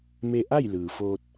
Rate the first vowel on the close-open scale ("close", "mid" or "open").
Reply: mid